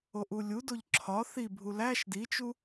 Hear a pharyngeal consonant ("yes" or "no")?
no